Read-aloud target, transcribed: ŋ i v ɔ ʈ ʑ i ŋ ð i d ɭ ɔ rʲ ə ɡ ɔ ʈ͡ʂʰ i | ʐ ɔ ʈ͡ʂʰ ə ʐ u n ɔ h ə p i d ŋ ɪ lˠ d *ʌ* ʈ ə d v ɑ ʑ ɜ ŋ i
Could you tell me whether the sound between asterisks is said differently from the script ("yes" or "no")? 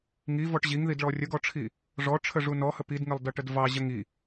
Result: no